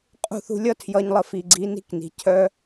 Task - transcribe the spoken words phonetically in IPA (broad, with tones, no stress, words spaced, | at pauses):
qʼṳ˦˨ θṳ˧lʲʌ˦ tʰjʌ˧ɲlˠə˧fi˨ɡ͡ǀi˨˦ ni̤˦kni̤˨ cʰœ˦